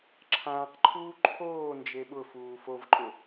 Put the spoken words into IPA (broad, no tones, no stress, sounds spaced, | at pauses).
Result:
ǁʰ ãː q ǃʰ uː ǃʰ oː n d͡ʒ e ɓ ʊ f uː f o v ǃʼ ʊ